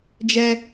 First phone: d͡ʒ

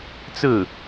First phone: t͡s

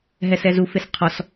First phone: ɦ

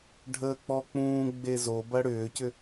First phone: ɖʱ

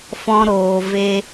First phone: f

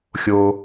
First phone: xʲ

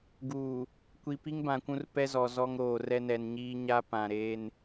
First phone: ɡ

